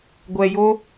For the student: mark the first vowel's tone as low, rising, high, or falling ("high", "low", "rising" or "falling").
low